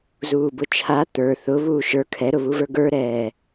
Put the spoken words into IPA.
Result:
z uː b ʊ t͡ʃʰ a t̪ ə˞ θ ʊ β uː ʃ ə˞ kʰ ɛ ɾ ʊ β u v ə˞ ɡ ə˞ ɾ ɛː

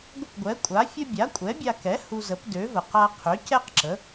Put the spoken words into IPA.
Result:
ɡʷ ə˥˩ p ɡʷ ɛ˩˥ kʷʼ a˩˥ fʲ ə˥ bʲ a˩˥ kʷʼ ɛ˩˥ bʲ a˧ k ɛ˩˥ h u˧ z ə˩˥ p d ø˩˥ v ə˩ q a˧ qʰ ø˩˥ c ɛ˥ q ǁ ə˩˥

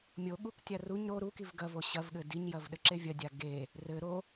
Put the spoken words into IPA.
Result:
mʲ o ɠ u k tʲ a r u ɲ ɾ o ɾ u k i v ɡ ɐ v o ɕ ɐ v ɠ ɘ d i ɲ j ɐ v ɗ ɘ ǁ e vʲ ɐ dʲ a ɡ e | r ɘ ɾ o

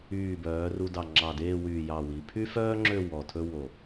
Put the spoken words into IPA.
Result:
yː˧˩ b œː˩˧ r u˧ d ɑ˧˩ ŋ͡ǁ ɑ˧˩ d eː˥˧ w yː˧˩ j ɑ˧˩ w i˩˧ pʰ y˥ f œː˥ ŋ͡ǁ ø˥˧ w ɔ˧˩ tʰ ɵ˥ w o˧˩

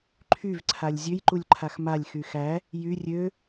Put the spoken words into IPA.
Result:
ǃʰ y v ǀʰ a lʲ zʲ ø j ǃ u lʲ ǃʰ a x m a lʲ x y x æ | j y rʲ ø

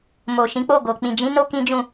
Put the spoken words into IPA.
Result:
m o˨ ʃ ĩ˨˦ k͡p o˦˨ ɡ o˨ k͡p ĩ˨ d͡ʒ ĩ˨˦ n o˦ k ĩ˦ d͡ʒ ũ˦˨

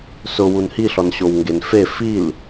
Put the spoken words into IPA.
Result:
s ʊ w u n h i ɬ ɔ n ɕ o w ŋ ɡ e n f e f i l

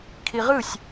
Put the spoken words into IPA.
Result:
kʰ i ʁ ɯ sʲ

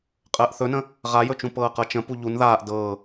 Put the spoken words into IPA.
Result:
qʼ əː ʔ θ ɵ n ə̃ | ʁ a j ɵ t͡ʃ ũ p ɤː q ɤ t͡ʃ ə̃ p u ʎ u n ð aː ʔ d ɤː

